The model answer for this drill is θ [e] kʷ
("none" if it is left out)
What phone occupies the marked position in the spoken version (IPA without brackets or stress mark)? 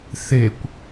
e